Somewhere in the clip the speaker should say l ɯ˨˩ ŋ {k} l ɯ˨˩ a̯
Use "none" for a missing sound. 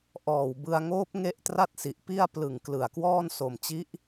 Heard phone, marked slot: k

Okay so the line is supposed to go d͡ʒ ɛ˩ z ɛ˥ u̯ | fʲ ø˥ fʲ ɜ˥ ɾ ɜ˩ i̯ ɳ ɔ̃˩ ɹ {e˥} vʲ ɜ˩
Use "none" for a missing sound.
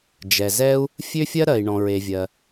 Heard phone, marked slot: e˩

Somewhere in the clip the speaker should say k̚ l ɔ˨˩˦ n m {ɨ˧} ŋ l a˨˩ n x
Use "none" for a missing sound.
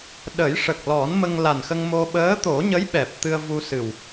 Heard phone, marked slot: ə˧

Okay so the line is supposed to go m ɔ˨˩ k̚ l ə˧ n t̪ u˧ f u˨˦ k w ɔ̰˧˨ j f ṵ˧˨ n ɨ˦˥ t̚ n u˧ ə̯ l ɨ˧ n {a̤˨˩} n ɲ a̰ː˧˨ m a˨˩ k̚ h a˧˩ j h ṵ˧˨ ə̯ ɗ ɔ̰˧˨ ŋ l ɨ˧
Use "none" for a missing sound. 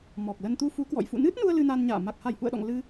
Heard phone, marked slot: a˧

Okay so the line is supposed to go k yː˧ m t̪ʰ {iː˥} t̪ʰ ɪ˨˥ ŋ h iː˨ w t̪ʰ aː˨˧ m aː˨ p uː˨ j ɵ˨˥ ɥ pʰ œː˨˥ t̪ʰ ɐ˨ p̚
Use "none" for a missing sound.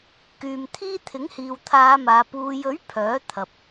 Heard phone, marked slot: iː˥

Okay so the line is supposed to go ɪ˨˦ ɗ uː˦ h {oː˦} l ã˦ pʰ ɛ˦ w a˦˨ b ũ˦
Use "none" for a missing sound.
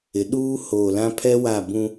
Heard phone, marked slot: oː˨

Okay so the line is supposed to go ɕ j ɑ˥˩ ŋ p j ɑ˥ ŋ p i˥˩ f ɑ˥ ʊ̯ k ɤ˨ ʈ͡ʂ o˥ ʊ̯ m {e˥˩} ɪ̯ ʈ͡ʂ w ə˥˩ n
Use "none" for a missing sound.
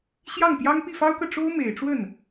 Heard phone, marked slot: e˨˩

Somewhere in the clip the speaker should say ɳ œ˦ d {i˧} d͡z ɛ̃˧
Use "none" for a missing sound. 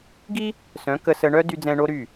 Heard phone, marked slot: y˧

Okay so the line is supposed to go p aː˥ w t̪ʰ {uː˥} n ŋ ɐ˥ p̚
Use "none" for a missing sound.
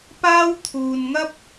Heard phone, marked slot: uː˧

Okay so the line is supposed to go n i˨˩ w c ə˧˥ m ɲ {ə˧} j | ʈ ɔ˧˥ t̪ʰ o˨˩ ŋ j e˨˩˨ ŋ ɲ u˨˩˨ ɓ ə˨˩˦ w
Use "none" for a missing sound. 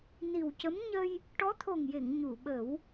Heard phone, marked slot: ə˧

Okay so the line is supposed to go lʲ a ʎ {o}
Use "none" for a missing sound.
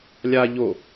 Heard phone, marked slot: o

